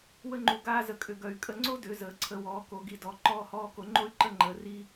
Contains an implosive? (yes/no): no